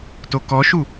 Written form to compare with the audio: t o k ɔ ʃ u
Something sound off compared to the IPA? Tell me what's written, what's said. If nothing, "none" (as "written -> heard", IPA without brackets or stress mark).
none